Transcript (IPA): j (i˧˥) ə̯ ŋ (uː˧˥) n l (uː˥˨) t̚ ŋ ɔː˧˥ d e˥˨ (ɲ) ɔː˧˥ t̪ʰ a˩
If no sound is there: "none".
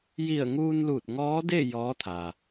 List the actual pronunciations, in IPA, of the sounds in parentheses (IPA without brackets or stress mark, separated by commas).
i˧˩, uː˧, uː˧˩, j